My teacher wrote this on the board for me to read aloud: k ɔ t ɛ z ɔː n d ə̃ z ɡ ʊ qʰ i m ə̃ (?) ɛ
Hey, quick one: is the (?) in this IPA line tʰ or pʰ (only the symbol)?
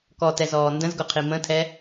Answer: tʰ